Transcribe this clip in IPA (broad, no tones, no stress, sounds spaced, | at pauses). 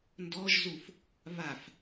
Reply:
n d ɔ ʒ z u f | β a f